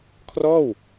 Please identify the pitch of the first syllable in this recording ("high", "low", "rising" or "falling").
falling